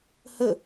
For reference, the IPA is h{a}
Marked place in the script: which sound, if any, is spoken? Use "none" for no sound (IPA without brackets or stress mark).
ə